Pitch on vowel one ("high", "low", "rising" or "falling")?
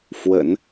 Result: low